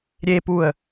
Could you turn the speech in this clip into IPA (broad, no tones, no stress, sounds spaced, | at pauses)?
ɾʲ e p u ə̯